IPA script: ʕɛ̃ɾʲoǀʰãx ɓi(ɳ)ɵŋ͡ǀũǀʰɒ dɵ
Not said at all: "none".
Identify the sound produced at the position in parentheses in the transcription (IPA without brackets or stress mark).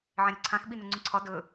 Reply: n